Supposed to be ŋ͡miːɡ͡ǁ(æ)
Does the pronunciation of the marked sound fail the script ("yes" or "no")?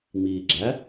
no